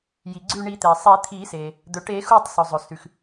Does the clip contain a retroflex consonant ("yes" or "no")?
yes